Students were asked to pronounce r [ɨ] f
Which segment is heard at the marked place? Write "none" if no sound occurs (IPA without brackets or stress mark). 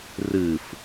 ɨ